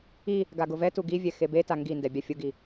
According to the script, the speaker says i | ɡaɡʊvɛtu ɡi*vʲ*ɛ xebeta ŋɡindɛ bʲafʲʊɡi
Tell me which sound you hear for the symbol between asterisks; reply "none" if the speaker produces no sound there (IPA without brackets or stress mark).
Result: vʲ